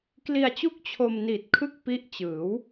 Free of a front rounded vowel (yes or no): yes